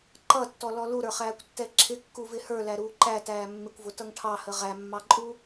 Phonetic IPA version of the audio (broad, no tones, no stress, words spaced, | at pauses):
ǃʌtːɔlɔ luɾə˞χæːkʷtːɛ ǁʰɪkːuvɪ hə˞læɾuː ǃætæː mːɪkʷvʊtʌŋ ʈʰɑhə ʁæmːɑǃʼu